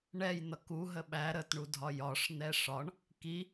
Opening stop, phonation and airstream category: plain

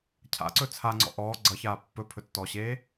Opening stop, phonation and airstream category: aspirated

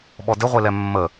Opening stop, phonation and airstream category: implosive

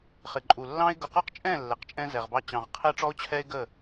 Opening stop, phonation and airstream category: click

